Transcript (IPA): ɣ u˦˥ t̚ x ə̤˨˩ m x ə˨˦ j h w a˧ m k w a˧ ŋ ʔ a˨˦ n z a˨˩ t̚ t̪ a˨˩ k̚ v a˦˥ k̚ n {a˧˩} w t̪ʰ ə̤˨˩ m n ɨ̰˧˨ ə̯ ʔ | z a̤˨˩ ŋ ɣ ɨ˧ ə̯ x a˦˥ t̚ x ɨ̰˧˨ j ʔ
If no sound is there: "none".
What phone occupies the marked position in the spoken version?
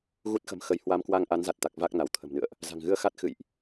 a˧˩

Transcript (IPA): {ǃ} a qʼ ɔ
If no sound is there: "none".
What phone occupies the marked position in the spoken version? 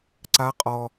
ǀ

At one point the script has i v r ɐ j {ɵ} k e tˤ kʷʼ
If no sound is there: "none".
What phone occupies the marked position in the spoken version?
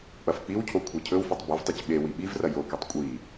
o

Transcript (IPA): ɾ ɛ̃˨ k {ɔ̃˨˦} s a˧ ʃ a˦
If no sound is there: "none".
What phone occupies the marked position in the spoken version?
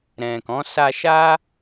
ɔ̃˨˦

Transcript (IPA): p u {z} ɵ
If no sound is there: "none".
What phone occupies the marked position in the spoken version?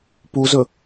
z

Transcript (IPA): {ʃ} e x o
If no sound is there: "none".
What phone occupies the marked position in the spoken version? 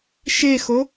ʃ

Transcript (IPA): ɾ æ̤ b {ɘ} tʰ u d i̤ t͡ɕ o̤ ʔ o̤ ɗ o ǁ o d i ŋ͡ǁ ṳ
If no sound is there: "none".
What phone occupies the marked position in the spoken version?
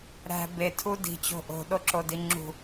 e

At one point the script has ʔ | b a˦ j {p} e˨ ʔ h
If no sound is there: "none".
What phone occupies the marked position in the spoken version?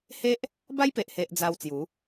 p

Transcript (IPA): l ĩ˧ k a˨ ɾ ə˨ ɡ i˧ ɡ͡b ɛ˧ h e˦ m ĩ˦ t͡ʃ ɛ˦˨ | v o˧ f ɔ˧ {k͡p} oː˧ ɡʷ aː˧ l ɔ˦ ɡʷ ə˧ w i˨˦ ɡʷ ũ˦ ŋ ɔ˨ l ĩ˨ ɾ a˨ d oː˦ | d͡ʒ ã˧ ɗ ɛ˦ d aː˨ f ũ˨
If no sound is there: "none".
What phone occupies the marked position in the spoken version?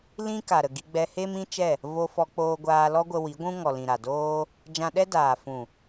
k͡p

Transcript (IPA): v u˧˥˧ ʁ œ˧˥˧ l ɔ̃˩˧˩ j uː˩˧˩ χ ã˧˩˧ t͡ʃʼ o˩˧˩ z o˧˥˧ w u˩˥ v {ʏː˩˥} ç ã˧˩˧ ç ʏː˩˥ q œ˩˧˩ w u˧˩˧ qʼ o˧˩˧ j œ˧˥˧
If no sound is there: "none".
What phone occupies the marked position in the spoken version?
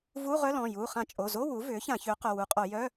ʏː˩˥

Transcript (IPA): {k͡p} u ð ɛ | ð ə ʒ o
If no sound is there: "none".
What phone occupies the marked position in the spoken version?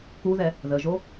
k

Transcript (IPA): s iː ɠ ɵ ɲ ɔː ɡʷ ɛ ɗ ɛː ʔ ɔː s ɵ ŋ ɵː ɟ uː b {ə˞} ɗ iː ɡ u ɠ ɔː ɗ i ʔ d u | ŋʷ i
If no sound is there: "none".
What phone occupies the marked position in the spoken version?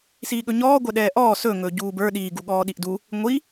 ə˞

